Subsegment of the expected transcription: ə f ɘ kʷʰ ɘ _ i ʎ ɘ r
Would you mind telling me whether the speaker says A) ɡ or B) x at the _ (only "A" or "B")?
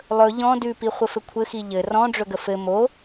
B